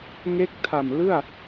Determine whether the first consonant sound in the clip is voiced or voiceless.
voiced